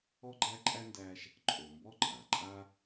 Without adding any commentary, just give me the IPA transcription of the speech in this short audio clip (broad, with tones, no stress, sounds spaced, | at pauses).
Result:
ɔ˥ ɡ͡ǃ æ˥ ǃʼ æ˥ n d æ˦ ʃ | ǃʼ o˨ m b ɔ˥ ǃʼ a˩ ǃʼ a˥